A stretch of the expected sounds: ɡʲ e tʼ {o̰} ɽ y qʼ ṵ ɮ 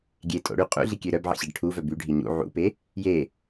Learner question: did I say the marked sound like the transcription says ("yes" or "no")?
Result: yes